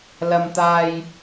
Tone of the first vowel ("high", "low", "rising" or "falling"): high